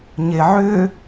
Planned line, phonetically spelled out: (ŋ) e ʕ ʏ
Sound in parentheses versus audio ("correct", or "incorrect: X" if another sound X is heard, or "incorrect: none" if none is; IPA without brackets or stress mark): incorrect: ɲ